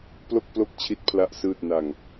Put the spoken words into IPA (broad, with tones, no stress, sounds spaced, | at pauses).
p l o˥˩ k̚ p l o˥˩ k̚ t͡ɕʰ i˦˥ t̚ pʰ l a˦˥ ʔ s ɯː˥˩ t̚ n a˧ ŋ